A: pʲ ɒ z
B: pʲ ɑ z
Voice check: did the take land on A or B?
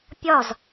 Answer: A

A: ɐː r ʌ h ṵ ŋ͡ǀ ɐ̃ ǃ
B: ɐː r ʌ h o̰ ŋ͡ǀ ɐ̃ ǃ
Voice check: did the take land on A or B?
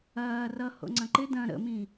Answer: B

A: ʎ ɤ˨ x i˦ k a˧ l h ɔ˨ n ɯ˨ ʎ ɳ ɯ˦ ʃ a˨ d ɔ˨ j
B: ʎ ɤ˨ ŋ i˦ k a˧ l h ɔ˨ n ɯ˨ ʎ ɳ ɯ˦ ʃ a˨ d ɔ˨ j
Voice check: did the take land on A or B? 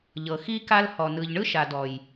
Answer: A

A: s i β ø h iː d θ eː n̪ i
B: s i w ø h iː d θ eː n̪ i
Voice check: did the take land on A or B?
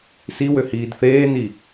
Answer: B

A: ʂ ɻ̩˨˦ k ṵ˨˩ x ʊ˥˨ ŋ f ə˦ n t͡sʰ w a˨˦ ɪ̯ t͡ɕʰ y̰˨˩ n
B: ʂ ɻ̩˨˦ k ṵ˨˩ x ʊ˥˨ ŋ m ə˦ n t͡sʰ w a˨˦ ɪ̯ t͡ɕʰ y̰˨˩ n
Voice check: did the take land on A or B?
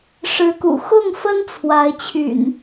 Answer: A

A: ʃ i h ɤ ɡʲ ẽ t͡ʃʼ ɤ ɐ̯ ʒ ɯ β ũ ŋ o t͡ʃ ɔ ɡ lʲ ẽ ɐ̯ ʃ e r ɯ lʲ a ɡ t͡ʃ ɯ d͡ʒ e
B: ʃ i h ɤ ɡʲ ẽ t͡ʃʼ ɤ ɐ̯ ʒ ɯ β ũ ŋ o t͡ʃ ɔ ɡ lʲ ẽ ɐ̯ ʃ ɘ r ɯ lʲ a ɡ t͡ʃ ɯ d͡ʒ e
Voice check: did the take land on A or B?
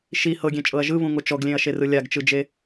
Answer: A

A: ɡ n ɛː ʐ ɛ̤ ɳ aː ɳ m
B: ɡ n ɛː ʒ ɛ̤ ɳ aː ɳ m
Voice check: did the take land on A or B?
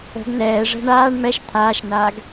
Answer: A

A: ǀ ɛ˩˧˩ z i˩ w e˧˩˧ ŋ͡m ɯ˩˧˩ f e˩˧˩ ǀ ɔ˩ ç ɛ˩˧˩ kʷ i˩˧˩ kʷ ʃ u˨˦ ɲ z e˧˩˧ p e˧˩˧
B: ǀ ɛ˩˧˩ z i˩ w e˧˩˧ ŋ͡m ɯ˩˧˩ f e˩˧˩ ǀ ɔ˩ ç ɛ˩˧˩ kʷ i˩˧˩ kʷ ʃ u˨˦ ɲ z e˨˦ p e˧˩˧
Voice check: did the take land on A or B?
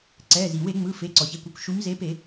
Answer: B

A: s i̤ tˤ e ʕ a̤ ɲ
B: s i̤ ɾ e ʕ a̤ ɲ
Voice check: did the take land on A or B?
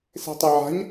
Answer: A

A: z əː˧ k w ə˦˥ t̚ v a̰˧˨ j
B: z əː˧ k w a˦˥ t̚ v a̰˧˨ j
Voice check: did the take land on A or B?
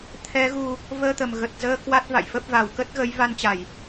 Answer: B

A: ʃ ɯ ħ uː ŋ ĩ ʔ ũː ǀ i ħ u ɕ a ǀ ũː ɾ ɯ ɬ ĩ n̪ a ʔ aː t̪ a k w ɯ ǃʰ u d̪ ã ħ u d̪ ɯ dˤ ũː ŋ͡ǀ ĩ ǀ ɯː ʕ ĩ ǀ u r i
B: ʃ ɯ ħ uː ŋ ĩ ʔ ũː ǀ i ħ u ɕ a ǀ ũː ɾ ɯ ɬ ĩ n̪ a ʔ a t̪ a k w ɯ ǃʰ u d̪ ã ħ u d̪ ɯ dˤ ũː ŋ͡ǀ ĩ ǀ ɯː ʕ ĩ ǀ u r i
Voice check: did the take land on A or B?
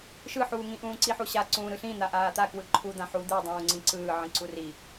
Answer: A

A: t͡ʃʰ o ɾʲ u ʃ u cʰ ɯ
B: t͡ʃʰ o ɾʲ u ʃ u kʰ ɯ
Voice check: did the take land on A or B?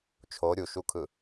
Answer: B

